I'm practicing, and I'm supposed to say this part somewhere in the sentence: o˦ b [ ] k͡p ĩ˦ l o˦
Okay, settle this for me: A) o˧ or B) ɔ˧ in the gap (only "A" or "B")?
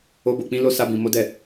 A